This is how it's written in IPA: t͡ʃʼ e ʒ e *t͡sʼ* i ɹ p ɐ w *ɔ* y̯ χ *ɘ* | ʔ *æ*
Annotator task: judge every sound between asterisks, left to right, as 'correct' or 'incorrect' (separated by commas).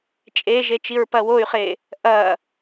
incorrect, incorrect, incorrect, incorrect